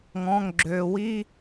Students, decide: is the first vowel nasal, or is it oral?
nasal